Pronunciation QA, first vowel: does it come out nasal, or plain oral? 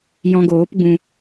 nasal